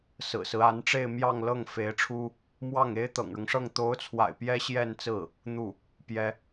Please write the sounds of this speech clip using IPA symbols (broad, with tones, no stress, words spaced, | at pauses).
sɹ̩˨˩sɹ̩˦a˧˥nʈ͡ʂe˥˧ɪ̯ mjɑ˥˧ŋlɤ˥˩ŋ fe˧˥ɪ̯ʈ͡ʂʰu˥ | mwɑ˥˩ŋe˥ɪ̯ t̪ɤ̰˨˩ŋɻʊ˦ŋʂɤ˥˩ŋ t̪o˧˥ʊ̯t͡sʰwa̰˨˩ɪ̯ pjɛ˥ɕjɛ˥˧nt͡sɹ̩˥˩ | n̪u˥˩ | pjɛ˥